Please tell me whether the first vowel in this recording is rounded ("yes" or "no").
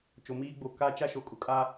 yes